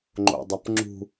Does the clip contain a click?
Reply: yes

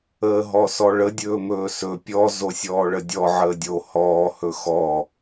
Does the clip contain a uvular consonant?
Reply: no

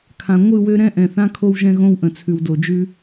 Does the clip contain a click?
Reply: no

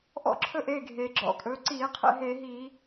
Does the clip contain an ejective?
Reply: yes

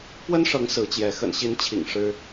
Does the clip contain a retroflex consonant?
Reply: yes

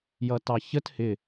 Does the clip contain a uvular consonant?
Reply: no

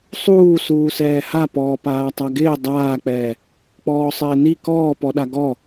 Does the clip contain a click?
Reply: no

